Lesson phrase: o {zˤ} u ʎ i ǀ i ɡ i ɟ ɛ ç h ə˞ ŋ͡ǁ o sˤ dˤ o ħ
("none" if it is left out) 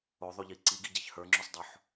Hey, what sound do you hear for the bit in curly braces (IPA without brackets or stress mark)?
ðˤ